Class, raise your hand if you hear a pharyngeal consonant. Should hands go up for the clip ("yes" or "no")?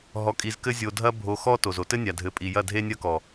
no